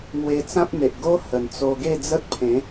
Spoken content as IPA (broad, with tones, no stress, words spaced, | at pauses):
ŋwe˧t͡sã˦p̚n̪e˨ʔ ɡo˦ hə˨˩nt͡so˧ ɡe˥˧d͡zə˦t̚pʰẽ˨˦